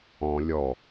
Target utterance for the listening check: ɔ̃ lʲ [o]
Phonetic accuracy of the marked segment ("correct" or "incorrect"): incorrect